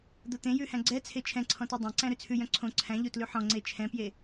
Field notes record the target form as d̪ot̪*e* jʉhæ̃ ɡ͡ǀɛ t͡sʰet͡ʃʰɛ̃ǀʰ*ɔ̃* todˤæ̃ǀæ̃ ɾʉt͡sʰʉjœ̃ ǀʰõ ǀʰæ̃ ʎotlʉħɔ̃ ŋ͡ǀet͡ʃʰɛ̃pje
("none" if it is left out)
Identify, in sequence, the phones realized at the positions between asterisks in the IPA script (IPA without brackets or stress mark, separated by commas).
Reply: ẽ, ɔ̃